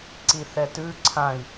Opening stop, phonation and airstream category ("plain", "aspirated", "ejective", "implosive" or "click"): click